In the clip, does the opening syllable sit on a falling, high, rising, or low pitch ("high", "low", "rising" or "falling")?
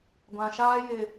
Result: low